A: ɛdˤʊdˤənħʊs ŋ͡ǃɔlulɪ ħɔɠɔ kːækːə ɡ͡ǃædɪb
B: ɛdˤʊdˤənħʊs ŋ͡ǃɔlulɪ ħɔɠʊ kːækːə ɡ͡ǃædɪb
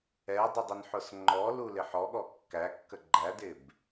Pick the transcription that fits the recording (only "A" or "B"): A